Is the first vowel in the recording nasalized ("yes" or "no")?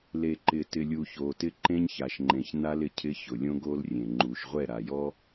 no